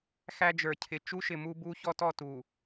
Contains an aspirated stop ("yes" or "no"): yes